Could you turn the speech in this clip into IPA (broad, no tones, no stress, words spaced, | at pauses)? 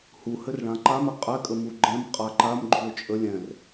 huhɘrɭã ǃamɛ qʼɛkʼəmu ɡ͡ǃɛ̃mqʼa ǃamɡ͡ǃuo̯ t͡ʃʼə lʲɛ̃r